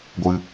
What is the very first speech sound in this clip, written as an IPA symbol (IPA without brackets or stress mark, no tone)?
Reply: ɡʷ